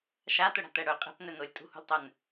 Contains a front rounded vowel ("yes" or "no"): yes